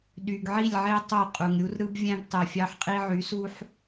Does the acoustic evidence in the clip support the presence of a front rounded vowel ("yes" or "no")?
yes